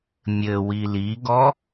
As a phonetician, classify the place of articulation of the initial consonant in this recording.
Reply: labial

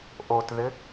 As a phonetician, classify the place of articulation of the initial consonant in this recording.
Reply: glottal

